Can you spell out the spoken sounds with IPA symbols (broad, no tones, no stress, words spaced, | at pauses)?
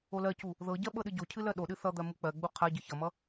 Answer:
olɜcu | ðɤɟɜ ɓɤɗɨɟocʰɨ lɜɗoɗɨ θʌd̪ɜ muk͡pɜɡ͡bu qʰa ɟɨçʌmʌ